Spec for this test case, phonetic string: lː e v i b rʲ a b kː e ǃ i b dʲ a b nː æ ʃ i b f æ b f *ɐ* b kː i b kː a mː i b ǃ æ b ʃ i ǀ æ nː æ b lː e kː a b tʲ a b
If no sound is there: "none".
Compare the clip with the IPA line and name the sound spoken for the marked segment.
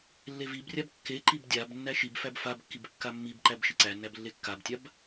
a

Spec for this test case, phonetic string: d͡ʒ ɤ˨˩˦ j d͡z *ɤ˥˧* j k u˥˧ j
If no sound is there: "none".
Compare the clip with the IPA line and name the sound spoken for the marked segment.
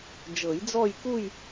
ɔ˥˧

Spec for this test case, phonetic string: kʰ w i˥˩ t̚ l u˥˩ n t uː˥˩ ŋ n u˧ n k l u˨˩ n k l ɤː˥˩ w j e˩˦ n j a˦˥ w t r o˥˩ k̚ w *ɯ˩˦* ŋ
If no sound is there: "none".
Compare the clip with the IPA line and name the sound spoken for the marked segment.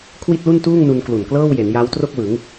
ɯ˩˦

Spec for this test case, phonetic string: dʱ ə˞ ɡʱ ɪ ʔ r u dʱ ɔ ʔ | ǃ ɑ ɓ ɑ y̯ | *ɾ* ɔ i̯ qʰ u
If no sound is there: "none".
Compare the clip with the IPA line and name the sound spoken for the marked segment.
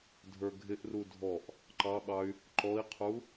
ǃ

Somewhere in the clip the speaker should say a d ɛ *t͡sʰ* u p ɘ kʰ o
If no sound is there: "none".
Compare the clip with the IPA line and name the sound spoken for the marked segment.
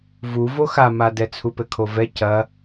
t͡sʰ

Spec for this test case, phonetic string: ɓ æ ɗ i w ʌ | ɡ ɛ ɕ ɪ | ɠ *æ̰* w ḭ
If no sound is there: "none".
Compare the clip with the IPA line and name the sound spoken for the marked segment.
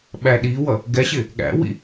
æ̰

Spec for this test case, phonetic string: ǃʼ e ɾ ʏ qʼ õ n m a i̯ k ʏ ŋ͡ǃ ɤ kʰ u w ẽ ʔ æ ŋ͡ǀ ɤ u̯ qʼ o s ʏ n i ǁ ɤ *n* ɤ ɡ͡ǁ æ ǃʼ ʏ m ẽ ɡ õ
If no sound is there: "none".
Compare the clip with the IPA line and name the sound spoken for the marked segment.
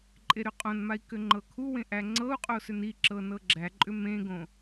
n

